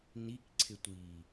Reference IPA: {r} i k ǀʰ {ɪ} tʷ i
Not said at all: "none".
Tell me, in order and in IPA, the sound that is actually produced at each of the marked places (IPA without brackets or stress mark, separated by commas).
n, ɪ